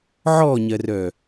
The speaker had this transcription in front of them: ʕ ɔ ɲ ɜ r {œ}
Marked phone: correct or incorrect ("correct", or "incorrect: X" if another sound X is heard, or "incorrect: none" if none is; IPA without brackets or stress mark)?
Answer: correct